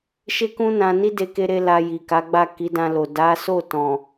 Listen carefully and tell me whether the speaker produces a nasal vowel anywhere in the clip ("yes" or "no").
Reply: yes